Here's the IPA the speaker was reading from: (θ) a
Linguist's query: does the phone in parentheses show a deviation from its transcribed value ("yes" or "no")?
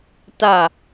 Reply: yes